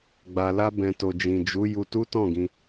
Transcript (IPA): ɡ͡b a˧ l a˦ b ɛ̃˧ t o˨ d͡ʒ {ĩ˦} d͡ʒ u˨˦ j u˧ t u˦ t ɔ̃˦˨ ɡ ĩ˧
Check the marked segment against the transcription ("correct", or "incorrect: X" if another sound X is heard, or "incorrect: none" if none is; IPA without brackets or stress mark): incorrect: ĩ˨